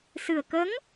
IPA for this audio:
s ɨ˨˩ ə̯ k ə˧˥ ŋ

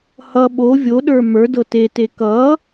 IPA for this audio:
h ʌ ɓ o vʲ o ɗ ə˞ m ə˞ d ɤ t e t e k ʌ

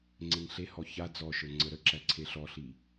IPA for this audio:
ŋ͡ǀ e ŋ ɬ e h ɔ ç a d͡z ɔ ʃ ə˞ ŋ͡ǀ ə ɾ ə ǁ æ ǀʰ e ɬ ɔ ɬ i

